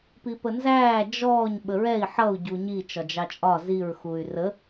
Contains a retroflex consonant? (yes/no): no